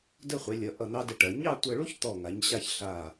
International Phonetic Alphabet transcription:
də˥˧χʷɛ˩˧lʲʌ˩˧ʔʌ˧˩ n̪ɑ˥də˧ʈɐ˩˧ ɲɑ˥˧tʷɤ˧ɭu˥ç t̪ɔ˧˩ ŋa˩˧ɲɕa˧ç ɬa˧˩

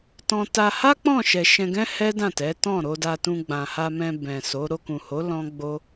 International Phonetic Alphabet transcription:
tɔ̃˧ ta˧ha˦ k͡pɔ̃˦˨ʃɛ˨ʃɛ̃˧ɡɛ̃˦ hɛ˦ dã˦˨tɛ˨˦tɔ̃˦˨ ɾo˧da˧tũ˧ ɡ͡bã˨ha˧mɛ̃˧ bɛ̃˨so˨˦ ɾo˧kũ˨ho˨˦ lɔ̃˦ ɡ͡bo˦

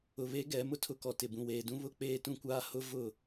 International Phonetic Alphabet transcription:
ʊ˨βe˦ ɡɛ˨˦ mʊ˦tʰʊ˦kɔ˨ tɪ˨bũ˨weː˨dũ˦ βʊ˦k͡peː˦ tũ˦kʷaː˦ hʊ˦ vʊ˦˨

